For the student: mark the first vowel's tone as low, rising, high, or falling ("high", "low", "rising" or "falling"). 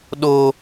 high